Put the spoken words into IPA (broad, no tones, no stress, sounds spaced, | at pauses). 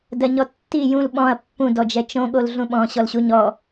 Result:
d ɜ ɲ ɔ tː i j ũ l ɓ ɔ̃ ɐ̯ pː ũ d ɔ d͡ʒ ɛ t͡ʃ õ ɠ o l ɮ ũ ɓ ɔ̃ ɕ ɔ l ɕ u ɲ ɔ